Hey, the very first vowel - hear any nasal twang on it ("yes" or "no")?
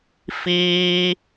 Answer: no